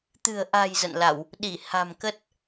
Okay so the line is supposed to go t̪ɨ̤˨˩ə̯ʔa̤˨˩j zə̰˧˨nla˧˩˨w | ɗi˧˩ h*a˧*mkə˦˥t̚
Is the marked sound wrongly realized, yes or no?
yes